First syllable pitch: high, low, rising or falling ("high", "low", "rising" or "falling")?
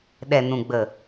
low